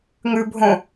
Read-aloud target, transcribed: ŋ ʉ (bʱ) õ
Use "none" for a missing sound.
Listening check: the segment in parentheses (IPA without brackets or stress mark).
bʱ